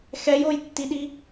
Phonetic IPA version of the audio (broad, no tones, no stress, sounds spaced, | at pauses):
x ɛ j o j tː i ɗ i